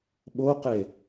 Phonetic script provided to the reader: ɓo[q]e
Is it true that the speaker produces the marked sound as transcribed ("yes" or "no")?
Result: yes